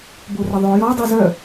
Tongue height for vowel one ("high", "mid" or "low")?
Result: mid